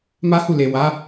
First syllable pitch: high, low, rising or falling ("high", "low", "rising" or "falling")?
high